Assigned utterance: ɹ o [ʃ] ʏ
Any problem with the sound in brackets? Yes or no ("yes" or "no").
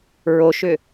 no